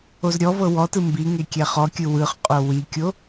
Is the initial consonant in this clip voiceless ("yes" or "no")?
no